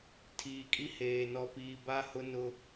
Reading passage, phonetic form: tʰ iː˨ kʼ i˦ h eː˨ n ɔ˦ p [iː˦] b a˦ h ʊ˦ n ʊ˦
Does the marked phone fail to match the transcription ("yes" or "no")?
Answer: no